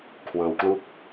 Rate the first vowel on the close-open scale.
mid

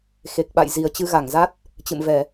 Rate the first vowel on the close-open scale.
mid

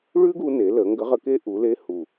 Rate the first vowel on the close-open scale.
close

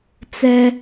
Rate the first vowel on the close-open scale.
mid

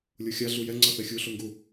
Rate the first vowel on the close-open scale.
mid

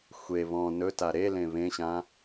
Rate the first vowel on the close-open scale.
mid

